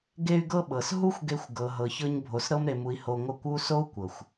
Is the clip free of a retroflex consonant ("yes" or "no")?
yes